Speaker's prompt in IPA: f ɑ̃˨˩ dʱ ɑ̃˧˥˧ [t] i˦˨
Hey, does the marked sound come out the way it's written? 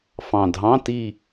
yes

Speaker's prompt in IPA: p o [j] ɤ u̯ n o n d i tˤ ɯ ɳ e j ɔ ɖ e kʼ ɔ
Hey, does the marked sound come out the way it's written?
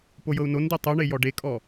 yes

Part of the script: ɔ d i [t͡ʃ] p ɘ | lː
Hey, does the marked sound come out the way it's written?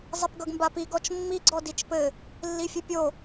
yes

